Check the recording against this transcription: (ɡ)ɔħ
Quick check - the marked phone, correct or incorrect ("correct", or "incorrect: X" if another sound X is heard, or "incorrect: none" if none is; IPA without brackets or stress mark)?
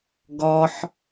correct